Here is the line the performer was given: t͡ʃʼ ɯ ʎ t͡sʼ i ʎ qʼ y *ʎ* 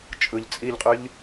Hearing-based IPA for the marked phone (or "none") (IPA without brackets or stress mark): ʎ